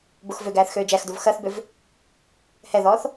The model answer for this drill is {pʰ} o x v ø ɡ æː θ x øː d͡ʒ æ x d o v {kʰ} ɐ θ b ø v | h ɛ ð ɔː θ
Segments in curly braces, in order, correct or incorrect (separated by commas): incorrect, incorrect